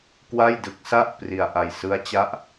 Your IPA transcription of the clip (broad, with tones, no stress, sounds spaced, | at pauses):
k w a˥˩ j d ɯ˦˥ k̚ s a˥˩ ʔ p r i˧ a̯ ʔ a˧ j s ɯ˦˥ a̯ t͡ɕ a˦˥ ʔ